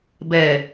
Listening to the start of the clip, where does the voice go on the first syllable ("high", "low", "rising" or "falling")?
low